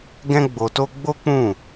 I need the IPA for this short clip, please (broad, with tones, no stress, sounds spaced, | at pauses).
ɡ ɛ̃˦ ɡ͡b o˧ t o˦ ɡ͡b o˦ k͡p ũ˦˨